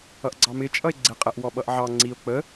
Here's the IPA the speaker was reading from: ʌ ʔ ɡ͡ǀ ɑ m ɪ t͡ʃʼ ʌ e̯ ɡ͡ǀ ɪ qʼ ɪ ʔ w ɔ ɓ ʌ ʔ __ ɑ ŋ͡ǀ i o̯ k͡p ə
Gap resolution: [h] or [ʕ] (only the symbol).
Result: ʕ